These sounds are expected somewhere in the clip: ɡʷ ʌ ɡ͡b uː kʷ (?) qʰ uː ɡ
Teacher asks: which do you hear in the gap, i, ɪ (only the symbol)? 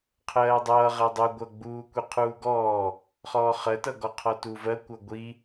i